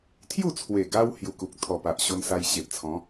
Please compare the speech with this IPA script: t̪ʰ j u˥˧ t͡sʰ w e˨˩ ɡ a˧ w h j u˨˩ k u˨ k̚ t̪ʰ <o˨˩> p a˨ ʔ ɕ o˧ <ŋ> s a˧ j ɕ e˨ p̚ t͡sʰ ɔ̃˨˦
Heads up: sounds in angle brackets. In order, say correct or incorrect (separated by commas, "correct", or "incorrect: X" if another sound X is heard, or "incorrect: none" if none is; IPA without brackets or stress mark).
incorrect: ɔ˨˩, incorrect: n